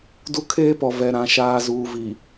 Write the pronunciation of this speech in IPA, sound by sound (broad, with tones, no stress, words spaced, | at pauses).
du˦kʰeː˦pɔ˨ vɛ˨ɾã˨ ʃaː˨ zuː˨vi˨